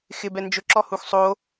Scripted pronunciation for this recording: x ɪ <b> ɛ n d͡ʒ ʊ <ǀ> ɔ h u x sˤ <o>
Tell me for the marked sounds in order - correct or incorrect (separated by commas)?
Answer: correct, incorrect, correct